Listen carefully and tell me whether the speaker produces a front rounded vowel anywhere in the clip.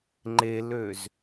yes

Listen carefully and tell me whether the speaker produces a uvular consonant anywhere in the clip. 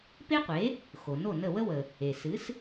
yes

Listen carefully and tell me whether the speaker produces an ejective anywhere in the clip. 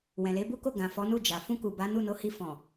no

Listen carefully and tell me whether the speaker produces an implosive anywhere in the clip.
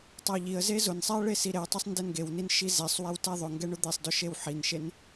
no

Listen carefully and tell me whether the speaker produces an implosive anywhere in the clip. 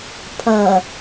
no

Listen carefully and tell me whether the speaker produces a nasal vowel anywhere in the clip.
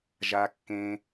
yes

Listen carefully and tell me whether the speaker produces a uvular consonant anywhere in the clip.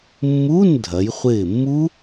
yes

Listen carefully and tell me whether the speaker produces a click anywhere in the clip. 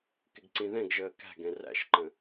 yes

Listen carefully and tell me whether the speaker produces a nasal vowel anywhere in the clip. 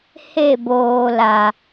no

